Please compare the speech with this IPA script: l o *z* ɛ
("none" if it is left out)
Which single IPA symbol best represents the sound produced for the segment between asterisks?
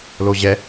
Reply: ʑ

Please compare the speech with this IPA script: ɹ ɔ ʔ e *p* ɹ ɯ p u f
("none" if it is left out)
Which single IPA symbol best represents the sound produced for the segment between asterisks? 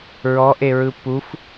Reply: none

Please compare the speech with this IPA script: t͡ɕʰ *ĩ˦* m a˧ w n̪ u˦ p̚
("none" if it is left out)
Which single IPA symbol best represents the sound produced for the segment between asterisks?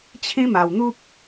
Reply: ĩ˦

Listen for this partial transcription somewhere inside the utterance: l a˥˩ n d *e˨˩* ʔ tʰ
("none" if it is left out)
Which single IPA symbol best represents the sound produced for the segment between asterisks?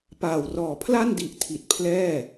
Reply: i˨˩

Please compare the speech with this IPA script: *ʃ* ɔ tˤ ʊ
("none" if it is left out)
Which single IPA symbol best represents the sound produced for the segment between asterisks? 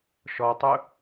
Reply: ʃ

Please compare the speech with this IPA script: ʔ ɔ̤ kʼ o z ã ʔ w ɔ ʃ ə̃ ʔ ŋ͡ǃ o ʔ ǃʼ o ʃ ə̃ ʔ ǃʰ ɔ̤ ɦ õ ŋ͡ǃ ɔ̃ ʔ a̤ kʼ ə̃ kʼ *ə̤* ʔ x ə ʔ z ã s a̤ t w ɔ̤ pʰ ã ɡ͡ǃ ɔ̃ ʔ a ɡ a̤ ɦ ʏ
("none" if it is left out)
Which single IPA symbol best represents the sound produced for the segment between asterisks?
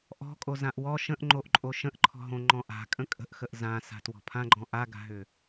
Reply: ə̤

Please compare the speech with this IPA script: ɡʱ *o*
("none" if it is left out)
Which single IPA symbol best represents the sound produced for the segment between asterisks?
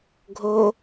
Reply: o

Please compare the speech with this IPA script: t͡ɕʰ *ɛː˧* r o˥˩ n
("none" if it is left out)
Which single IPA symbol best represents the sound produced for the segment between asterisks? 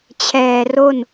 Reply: ɛː˨˩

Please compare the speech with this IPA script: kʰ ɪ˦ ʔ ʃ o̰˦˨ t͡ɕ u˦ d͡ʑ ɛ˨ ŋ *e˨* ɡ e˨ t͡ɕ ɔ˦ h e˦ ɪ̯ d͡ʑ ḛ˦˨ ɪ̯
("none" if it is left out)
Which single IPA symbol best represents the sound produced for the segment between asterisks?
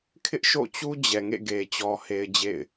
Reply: ḛ˦˨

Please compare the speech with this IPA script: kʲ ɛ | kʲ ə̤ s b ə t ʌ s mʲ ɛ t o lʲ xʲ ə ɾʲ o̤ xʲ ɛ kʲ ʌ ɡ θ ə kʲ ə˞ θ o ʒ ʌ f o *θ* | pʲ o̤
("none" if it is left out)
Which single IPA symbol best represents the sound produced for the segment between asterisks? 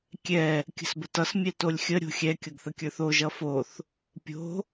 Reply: θ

